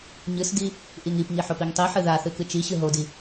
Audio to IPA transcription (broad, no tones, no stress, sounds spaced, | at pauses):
ɲ ɨ s d i | ʔ i ŋ i p ŋ i ħ o p i ŋ tˤ i ħ ɨ ð a θ ɨ k ɨ t͡ʃ i ɕ ɨ ɦ o d i